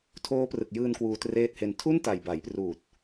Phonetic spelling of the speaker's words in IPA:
tʰ oː˦˥ p r ɯ˨˩ k̚ j ɯː˧ n k w uː˧ t r eː˥˩ t̚ h e˦˥ n tʰ u˥˩ n t a˨˩ j b a˩˦ j p r uː˨˩ t̚

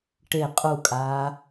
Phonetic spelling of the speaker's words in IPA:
ʈ e qʼ u kʼ aː

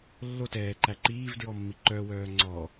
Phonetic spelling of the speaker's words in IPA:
lː o t ɛː ǃ æ ǃ iː v d ɹ ɔ mː i ǃ œ w œː ŋ͡ǀ ɔ

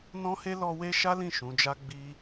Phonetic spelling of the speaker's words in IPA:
n ɔ̃˦ h e˦ l ɔ˧ w e˦ ʃ a˦ l ĩ˦˨ ʃ ũ˨˦ d͡ʒ a˦ ɡ͡b i˦

